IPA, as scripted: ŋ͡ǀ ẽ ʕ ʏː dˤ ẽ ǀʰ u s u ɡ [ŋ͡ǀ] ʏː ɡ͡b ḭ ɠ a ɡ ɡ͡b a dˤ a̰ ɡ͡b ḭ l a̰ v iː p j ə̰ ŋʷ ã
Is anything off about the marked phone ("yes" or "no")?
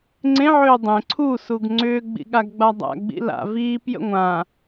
no